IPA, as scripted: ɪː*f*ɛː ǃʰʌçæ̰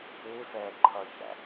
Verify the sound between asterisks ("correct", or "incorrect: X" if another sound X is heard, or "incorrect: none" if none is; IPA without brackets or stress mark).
correct